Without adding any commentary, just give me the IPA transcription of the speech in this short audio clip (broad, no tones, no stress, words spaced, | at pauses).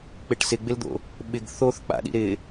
k͡pɪʈsɪɡ͡bɪld̪o̰ | ɓɪɡ θoθk͡pa̰ɗḭ ɾɪ